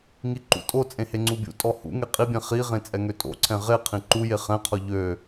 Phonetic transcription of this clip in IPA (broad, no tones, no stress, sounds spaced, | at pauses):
ŋ i ǃ ṵ tʼ o t͡sʼ ẽ h e ŋ͡ǀ u bʲ ṵ tʼ ɔ h ṵ ŋ e qʼ i bʲ ɛ̃ χ i ʁ ẽ t͡sʼ ɛ ŋ ø tʼ o̰ ǀʰ ɛ̃ ʁ e qʰ ĩ ǃ u j e χ ɛ̃ qʰ ɔ ʎ ø